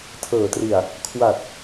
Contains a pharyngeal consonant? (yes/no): no